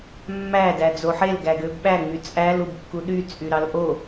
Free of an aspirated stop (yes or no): yes